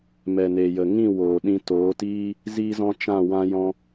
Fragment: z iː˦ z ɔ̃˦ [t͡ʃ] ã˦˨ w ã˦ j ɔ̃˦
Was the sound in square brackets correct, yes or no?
yes